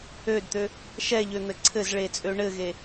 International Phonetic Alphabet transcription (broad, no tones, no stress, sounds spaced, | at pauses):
ø d t̪ ø | ʃ ɛ ʎ ø n̪ ɘ ǀʰ ɘ z ɭ e t͡sʼ ø ɳ ɘ ɣ e